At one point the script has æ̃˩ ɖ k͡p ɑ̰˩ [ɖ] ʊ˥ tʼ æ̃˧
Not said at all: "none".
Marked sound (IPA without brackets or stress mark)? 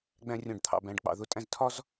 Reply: ð